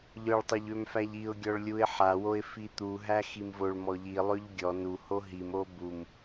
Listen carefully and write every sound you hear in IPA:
ʎ œ ɭ tˤ ø ʎ ø m f æ ʎ i ʊ̯ ɡʲ ɔ ɭ lʲ u ɪ̯ ħ a w o ɪ̯ f i t̪ u ɦ æ x i m v o ɭ m ɔ ʎ i lˠ ø ʎ ɡʲ ɔ n u h o ɦ i m o b u m

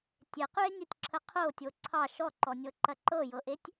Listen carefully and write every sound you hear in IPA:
tʲ e q y e̯ nʲ o tʲ ǁʰ ə qʰ o tʲ o ǀʰ ɑ ʃ ɔ ǃ ɔ nʲ ɤ ǃ ɐ ǃ ɤ j ɤ ʔ e tʲ

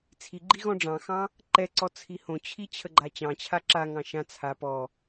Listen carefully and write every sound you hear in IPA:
t͡sʰ i ɡ͡ǃ i ɣ ɔ̃ ɖ͡ʐ ɑ̃ x ɑ̃ | ǃ ɛ ǀ ɔ t͡sʰ i h õ t͡ɕʰ i t͡ɕʰ ə ɡ͡ǃ a t͡ɕ ɑ̃ t͡ɕʰ a ǁ a ŋ ɑ̃ ʃ ã t͡sʰ a p ɔ

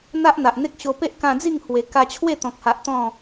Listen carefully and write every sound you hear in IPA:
n̪ a˦ ʔ n̪ a˨ ʔ n̪ e˦ k̚ ɕ o˧ p e˦ ʔ k ã˧ d͡z i˥˧ ŋ h w e˧ k a˧ t͡ɕʰ w e˥˧ t̪ ɔ̃˨ k̚ h a˨ ʔ t̪ ɔ̃˥˧

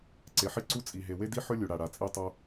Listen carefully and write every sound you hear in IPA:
ǀ e˩ ħ i˥ ǀ u˥ t͡sʼ i˩ ɦ e˩ w e˥ d i˥ ħ ɵ˥ lʲ u˩ ɽ a˩ ɽ a˩ t͡sʼ i˥ tˤ o˥

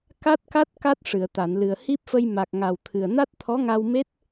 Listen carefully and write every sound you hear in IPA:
k a˦˥ t̚ k a˦˥ t̚ k a˦˥ t̚ ʂ ɨ˨˩˨ ə̯ t̪ a˨˩˨ n l ɨ˨˩ ə̯ h i˦˥ p̚ f ə˧ j m a˨˩ k̚ ŋ a˨˩ w t̪ʰ ɨ˨˩ ə̯ n a˦˥ t̚ t̪ʰ ɔ˧˥ ŋ a˧ w m e˦˥ t̚

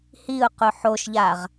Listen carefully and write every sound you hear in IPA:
h i ʊ̯ q ʊ ħ o ʃ ʎ a ʁ

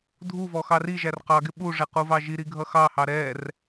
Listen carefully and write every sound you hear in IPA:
dʱ u v ɔ x ɑ r i ʒ æ r q ɑ ɡ ɪ ɓ u ʐ ɛ q u v ɑ ʒ i ɾ i ɡʱ ʌ x ɑ h ɑ ɾ ɛ r

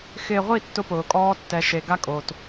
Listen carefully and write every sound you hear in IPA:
x ɪː˨ ʁʷ i˦˨ tː ʊ˦ p ʊː˨ kʼ ɔː˦ tː ɛ˨ ʃ e˨ ɡ a˦ kʼ oː˨ t

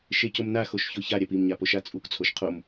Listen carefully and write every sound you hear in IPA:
ʃ e c o m n a x o ʃ ç o ç a ɾʲ a p i m ɲ a p o ʃ a t͡sʼ u k t͡sʰ o ʃ qʰ o m

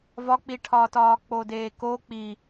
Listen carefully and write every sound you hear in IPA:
v ɒ k͡p i ʈʰ ɒː t ɒː k͡p o d eː k o k͡p i

